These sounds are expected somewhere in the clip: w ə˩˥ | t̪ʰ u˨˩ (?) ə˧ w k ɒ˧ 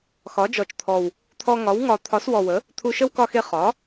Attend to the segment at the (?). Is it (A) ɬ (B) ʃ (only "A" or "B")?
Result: B